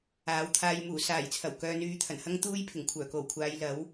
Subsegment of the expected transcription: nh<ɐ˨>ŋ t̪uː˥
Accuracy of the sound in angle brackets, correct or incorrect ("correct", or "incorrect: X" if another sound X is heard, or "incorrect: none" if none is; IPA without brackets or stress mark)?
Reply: incorrect: ɐ˥